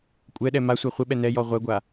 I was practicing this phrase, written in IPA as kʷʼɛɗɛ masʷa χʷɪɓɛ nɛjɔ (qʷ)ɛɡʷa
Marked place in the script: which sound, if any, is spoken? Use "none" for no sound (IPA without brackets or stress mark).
ʁʷ